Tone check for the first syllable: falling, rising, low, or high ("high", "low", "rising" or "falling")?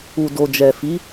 low